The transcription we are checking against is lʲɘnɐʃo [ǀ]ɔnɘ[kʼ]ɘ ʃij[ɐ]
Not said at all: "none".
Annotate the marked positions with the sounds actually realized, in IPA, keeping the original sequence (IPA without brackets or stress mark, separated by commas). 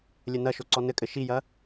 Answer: ǀ, kʼ, ɐ